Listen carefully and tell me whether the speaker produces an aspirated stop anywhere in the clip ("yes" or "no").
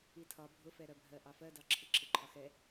yes